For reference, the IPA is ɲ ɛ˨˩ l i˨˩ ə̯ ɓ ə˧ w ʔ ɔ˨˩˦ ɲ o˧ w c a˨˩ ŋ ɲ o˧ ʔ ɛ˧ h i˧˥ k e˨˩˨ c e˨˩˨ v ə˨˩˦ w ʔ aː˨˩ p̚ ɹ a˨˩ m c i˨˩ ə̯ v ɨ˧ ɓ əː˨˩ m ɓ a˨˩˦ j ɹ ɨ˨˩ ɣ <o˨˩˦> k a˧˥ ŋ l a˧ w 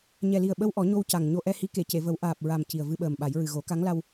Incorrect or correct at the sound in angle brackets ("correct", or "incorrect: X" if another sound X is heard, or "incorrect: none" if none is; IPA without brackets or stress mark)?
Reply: correct